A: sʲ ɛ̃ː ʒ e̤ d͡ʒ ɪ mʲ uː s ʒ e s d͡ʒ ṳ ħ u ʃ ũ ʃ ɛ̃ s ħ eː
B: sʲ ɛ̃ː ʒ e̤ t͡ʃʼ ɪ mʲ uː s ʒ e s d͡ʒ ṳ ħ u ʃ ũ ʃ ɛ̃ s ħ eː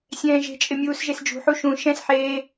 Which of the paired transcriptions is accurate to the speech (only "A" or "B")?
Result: B